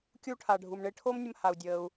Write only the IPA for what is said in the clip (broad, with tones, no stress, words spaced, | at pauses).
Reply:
kʲuː˧ʈʰaː˩ɖʱu˩m ɳe˧ʈʰoː˥mnʲə˧m ha˩u̯ dʲəː˩u̯